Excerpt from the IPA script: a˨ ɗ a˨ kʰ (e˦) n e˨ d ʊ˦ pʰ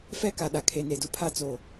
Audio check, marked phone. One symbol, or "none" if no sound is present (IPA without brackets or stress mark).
e˨